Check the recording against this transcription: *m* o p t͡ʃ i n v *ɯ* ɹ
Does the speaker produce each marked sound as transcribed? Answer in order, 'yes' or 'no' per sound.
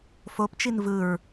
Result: no, yes

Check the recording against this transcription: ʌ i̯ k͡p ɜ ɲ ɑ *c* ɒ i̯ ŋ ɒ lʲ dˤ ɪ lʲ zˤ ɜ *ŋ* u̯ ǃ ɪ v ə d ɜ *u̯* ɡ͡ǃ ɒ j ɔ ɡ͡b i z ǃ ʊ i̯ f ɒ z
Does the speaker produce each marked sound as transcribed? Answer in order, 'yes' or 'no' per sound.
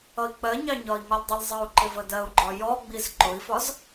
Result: no, no, yes

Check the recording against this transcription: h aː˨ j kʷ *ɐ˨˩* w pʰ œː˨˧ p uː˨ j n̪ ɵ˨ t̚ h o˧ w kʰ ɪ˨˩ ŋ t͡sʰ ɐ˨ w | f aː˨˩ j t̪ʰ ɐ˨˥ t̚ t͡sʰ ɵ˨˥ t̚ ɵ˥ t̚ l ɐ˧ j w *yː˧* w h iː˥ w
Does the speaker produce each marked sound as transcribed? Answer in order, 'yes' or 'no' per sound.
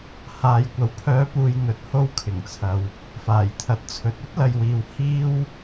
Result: no, no

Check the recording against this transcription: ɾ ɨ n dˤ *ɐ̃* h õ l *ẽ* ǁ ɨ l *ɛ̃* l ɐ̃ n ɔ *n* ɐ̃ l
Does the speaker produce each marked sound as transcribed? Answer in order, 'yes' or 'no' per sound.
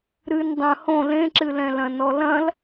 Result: yes, yes, yes, no

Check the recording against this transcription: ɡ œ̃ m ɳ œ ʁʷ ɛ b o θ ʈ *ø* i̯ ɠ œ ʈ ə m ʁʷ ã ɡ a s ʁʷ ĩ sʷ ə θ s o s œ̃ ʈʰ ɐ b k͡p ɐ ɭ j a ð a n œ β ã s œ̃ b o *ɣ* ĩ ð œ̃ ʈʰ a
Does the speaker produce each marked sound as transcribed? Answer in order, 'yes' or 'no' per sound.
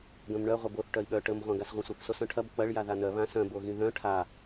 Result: no, yes

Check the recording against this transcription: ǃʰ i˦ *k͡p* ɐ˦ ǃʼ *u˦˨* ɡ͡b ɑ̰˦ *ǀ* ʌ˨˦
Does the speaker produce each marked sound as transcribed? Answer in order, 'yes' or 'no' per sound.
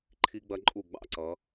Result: no, yes, yes

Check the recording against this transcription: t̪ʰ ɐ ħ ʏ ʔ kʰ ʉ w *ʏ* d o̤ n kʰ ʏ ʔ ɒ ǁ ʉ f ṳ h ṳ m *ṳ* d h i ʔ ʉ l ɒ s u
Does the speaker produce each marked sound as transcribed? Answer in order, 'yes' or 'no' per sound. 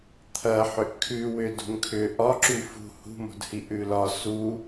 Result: yes, no

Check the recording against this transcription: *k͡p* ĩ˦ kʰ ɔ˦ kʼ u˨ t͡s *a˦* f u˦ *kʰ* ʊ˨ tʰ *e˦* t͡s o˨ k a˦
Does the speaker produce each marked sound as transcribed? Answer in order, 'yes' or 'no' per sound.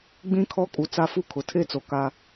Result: no, yes, yes, yes

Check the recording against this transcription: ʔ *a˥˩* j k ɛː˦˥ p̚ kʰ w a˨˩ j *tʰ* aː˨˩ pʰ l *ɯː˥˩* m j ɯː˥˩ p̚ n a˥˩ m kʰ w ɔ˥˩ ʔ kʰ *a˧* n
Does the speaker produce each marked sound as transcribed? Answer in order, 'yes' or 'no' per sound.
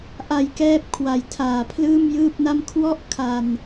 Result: no, yes, yes, yes

